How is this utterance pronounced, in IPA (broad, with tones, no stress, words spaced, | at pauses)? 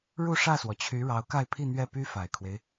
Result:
ɻu˥˧ʂä˥˩swɔ˩t͡ɕʰy˧˥ ɻɑ˧˥ʊ̯ka˥˧ɪ̯pʰi˥˧ n̪ɥɛ˥˩py˥fa˨˩ɪ̯kʰwe˦ɪ̯